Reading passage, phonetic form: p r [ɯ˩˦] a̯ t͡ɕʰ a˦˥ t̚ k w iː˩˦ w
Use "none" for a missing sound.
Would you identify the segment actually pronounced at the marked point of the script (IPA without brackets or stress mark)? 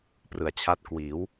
ɯ˩˦